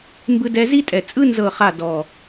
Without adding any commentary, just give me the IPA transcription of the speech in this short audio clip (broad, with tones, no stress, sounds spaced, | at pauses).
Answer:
m b ɯ˧ d ɛ˧ z i˦ tʼ ɛ˨ t͡sʼ ɯ˦ n z ɤ˦˨ χ a˦˨ d ɔ˨